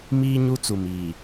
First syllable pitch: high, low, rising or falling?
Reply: high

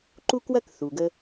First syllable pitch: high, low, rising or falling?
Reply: high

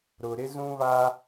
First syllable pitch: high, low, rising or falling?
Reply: low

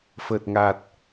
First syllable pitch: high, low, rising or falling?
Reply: low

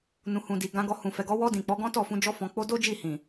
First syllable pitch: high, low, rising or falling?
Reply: low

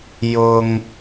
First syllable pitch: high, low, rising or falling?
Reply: low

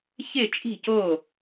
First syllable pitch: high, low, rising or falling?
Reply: falling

